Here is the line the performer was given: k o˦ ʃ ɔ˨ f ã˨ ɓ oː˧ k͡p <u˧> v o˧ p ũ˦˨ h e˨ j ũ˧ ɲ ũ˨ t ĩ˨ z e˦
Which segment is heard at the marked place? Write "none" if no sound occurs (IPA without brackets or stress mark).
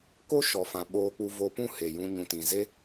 u˧